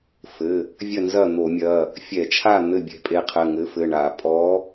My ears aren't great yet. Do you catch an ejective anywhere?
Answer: yes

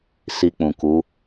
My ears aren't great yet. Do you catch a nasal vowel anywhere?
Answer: yes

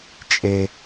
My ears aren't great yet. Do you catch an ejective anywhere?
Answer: yes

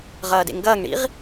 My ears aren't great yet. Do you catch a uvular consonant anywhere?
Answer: yes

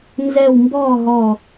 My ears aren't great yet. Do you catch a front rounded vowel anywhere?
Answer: no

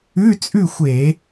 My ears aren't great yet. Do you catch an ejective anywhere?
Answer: yes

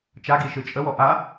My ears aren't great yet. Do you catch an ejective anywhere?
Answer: yes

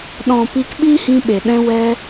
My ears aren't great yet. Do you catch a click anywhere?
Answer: no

